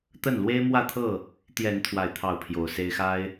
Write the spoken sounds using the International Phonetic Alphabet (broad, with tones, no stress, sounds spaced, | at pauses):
t̪ ə˥˨ n l w e˦ ɪ̯ m w ä˥˨ t̪ʰ ɤ˥˨ | t̪ j ɛ˨˦ n t̪ʰ w a˥˨ ɪ̯ t̪ʰ ɑ˥˨ ʊ̯ pʰ j o˨˦ ʊ̯ s e˦ ɪ̯ x a˦ ɪ̯